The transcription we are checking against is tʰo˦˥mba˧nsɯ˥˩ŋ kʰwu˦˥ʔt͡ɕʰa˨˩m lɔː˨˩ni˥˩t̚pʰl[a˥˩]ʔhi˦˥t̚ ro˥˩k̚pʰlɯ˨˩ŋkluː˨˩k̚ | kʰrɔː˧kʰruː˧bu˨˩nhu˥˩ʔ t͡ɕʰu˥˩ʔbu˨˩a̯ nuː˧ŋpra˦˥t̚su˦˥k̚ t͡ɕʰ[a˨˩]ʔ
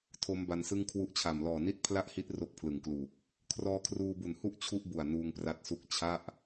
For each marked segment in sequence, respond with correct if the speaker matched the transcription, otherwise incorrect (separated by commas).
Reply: correct, incorrect